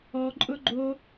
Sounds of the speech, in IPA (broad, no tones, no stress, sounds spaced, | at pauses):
ɔ ǃʼ ʊ ɡ͡ǃ o